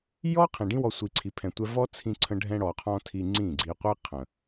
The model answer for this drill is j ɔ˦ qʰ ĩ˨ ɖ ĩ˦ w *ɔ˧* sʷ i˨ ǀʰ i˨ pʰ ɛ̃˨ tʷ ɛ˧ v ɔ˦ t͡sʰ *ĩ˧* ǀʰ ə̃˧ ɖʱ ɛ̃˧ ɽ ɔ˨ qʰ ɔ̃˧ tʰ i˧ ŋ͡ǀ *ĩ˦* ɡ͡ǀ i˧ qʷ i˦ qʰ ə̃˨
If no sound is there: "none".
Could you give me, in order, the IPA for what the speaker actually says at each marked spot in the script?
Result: ɔ˧, ĩ˧, ĩ˦˨

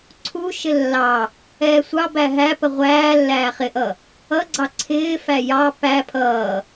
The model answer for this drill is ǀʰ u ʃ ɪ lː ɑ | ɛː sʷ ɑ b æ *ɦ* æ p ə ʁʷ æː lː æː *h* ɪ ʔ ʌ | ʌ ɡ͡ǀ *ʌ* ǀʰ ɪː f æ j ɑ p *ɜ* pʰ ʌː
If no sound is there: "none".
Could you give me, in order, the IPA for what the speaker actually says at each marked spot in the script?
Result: ɦ, χ, ɑ, æ

